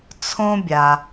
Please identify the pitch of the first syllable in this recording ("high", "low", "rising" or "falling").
high